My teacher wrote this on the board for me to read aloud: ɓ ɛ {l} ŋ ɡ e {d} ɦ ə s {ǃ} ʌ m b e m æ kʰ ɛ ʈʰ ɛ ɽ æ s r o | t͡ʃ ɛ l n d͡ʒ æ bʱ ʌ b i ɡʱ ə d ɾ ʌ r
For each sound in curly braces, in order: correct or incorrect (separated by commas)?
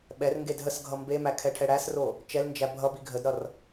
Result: incorrect, correct, incorrect